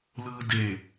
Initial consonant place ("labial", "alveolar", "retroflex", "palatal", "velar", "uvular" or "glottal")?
alveolar